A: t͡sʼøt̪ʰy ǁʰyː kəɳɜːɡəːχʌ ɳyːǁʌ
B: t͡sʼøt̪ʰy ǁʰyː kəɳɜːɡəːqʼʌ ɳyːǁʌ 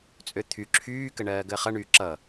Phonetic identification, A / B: A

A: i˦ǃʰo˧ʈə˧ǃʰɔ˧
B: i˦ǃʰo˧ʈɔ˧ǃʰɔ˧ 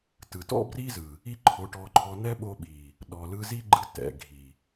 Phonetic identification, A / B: B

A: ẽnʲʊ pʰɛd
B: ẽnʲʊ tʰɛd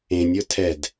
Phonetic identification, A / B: B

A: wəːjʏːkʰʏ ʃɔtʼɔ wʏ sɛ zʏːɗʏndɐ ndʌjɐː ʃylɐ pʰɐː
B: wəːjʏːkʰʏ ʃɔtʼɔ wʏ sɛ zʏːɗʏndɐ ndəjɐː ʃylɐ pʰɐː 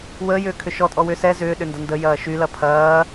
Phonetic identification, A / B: B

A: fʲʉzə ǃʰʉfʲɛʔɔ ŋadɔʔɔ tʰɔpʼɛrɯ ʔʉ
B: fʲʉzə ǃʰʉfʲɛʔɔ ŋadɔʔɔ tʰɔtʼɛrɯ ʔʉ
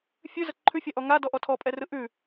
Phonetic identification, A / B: A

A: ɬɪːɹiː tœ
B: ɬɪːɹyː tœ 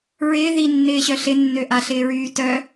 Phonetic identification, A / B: B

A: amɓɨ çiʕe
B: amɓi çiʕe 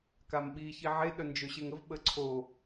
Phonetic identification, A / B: B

